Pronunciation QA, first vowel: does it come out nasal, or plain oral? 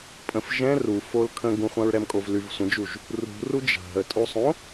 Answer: nasal